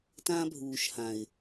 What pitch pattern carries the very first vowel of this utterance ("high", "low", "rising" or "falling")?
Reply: high